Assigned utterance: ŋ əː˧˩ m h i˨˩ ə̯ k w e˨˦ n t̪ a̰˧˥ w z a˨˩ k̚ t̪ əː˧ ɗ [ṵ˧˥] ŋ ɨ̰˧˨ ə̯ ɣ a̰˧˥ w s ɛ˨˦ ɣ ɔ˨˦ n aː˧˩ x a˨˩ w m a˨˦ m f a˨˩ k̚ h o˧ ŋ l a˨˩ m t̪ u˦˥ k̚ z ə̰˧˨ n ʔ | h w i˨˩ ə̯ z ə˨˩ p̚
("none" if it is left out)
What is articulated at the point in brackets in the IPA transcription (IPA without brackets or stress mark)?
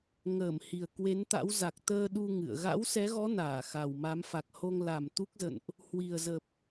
u˧